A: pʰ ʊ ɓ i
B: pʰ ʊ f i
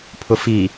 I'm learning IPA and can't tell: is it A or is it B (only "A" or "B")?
B